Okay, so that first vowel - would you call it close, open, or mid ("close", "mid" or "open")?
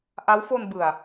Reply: open